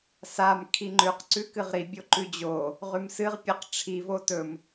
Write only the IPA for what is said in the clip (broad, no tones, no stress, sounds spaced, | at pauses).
s a m kʰ i ŋ͡ǃ ʉ q ǀ ʉ k ɨ ʁ ɾ i bʲ o ǃ ʉ d͡ʑ o | ʁ ʉ m s ɨ ʁ pʲ ɐ q ʈ͡ʂʰ i v o t ɵ m